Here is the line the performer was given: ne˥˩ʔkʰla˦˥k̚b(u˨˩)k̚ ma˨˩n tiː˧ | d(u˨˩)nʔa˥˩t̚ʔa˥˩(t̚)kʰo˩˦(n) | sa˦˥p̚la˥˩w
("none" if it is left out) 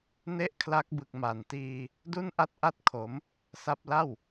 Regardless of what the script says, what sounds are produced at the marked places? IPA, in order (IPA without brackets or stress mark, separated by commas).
ɯ˨˩, u˥˩, t̚, m